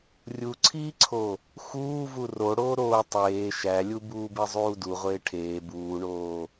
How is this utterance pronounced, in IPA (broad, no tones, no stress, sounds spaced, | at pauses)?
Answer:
rʲ u ǀʰ iː ǀʰ o | x uː v u r o ɽ oː ɾ oː tˤ eː ʃ æ lʲ u b uː b e zˤ uː d u ʁʷ eː ʈʰ eː b uː ɳ oː